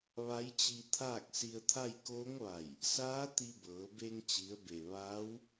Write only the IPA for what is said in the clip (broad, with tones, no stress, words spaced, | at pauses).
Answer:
ʋa˧˥jt͡ɕi˧ t̪ʰaː˥˨k̚si˧ə̯t̪ʰa˥˨j koː˧˥ŋʋa˧˩j | saː˧˥ t̪i˧bɤː˩˧be˧ŋ t͡ɕi˩˧ə̯be˩ ʋaː˧˥w